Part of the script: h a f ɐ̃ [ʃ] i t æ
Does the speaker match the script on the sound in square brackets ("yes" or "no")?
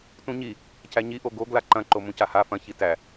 no